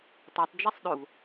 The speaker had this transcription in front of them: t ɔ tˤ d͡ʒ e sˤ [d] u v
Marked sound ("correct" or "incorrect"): incorrect